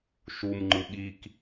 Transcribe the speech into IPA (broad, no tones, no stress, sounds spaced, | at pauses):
ʃ u m ŋ͡ǃ ɯ ɠ i k